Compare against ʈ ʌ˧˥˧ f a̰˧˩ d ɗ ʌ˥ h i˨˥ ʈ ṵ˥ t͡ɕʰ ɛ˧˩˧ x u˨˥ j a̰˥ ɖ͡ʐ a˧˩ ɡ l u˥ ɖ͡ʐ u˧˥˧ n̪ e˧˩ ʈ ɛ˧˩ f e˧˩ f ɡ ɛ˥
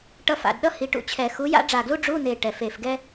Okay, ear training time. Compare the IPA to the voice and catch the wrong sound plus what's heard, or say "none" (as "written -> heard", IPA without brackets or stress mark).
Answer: none